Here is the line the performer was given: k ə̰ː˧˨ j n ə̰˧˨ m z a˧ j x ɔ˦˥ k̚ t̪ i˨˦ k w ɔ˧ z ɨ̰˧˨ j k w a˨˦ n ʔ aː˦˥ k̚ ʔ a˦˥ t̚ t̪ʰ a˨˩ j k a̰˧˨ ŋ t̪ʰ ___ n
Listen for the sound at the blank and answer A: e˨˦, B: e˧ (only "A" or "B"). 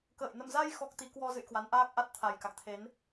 A